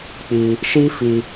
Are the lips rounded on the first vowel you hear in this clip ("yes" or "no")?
no